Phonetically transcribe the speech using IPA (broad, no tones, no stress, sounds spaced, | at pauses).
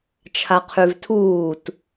t͡ʃʰ a qʰ ʉ v tʰ uː t